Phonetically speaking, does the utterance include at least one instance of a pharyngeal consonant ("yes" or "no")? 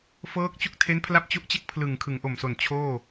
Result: no